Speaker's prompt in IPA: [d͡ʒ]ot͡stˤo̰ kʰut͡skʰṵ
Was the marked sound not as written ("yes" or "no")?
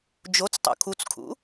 no